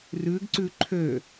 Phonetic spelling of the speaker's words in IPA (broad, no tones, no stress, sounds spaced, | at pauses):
r ʉ ɡ ǀ ʉ ǃʰ ø